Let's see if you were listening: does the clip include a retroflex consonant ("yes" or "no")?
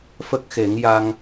no